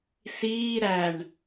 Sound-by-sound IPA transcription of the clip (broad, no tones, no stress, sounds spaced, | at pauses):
s iː ɾ æ ɳ